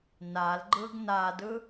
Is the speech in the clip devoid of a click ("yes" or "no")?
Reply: no